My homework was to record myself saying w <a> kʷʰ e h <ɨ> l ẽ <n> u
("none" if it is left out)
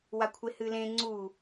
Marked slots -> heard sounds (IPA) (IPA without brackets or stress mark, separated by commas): a, ɨ, ŋ͡ǀ